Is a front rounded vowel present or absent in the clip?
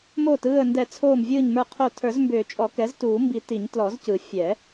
present